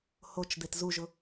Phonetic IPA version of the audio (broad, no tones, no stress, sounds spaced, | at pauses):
h o t͡ʃ d̪ e t z u ʒ ʊ